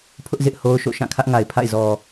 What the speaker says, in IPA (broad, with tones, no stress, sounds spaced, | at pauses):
pʰ ʊ˦ ʔ z ɪ˦ ʔ h o˦ ʊ̯ ʃ o̰˦˨ ʃ ã˦˨ kʰ ä˦ ʔ ŋ a˨ ɪ̯ pʰ a̰˦˨ ɪ̯ z ɔ˨